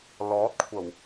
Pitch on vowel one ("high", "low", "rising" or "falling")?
rising